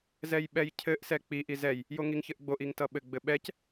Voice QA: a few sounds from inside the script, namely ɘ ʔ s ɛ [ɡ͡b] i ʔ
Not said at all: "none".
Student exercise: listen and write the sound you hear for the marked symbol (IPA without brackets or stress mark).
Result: k͡p